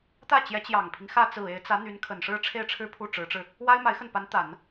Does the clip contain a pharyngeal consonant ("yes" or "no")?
no